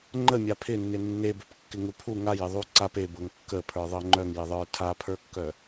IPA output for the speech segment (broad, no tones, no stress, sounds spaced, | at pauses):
ŋ͡ǃ ə mʲ a pʰ ɪ nː ɪ nː e b œ p kː ɪ ŋ u pʰ u ŋ a j ɪ ðˤ u ǀ a p e b ɤ ŋ kː ə pʰ ə˞ ðˤ ɤ ŋ͡ǃ œ ŋ j ɪ ðˤ ə˞ tʰ a pʰ ə˞ kː œ